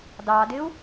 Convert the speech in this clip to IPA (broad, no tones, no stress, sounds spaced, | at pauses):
d ɑ d ɪ u̯